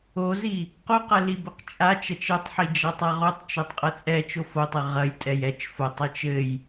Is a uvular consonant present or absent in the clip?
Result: present